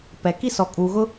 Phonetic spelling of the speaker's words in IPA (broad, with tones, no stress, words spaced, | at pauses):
pɛ˨ki˦ sɔ˨kʼuː˨ɣʊ˦